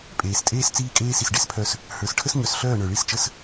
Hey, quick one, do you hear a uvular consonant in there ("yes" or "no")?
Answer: no